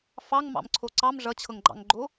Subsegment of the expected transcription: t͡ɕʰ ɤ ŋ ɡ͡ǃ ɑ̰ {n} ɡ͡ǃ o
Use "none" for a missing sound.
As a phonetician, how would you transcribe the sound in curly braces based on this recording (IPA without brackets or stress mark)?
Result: ŋ